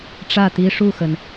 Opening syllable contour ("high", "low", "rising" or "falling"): falling